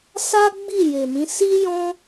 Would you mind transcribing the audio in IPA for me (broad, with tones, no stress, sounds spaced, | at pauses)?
s a˦ ɡ͡b i˦˨ j e˨ m ĩ˨˦ s i˦ j ɔ̃˦